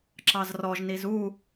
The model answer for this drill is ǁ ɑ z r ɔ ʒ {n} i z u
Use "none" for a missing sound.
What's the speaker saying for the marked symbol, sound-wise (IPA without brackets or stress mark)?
n